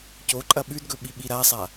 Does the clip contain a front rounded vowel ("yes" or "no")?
no